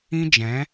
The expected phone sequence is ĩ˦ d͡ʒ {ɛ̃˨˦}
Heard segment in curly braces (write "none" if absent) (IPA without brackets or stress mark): ɛ̃˨˦